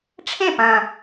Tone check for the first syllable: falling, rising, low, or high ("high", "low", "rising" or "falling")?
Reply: falling